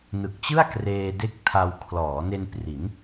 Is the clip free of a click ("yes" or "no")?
yes